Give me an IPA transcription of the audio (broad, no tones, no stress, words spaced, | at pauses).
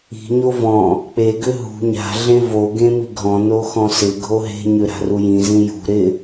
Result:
i̤ɲo vɔ̃ | k͡peɡʏ ɦṳ ɲa̤ɮẽ vo ɡẽmiɡʱɔ̃no xɔ̃sɪɡʱo ɦe̤ɲʏ ɾa̤rujĩzĩ jṳ ɾɪ